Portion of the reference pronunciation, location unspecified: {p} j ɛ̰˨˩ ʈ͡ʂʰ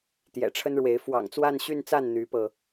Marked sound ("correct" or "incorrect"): incorrect